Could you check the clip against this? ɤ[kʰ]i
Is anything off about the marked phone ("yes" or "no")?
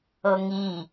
yes